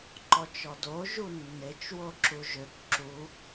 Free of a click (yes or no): no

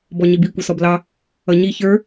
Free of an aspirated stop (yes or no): yes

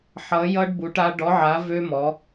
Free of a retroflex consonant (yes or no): no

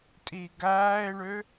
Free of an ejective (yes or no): no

